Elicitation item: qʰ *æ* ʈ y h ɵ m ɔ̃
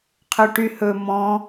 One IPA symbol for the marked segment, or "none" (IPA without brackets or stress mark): œ